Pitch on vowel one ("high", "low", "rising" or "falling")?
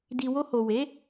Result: low